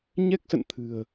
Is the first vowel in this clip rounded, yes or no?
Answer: no